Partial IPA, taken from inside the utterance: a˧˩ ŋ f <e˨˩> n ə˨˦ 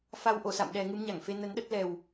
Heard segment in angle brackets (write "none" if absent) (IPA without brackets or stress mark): e˧